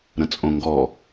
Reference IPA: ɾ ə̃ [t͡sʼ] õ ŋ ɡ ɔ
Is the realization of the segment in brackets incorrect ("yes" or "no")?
no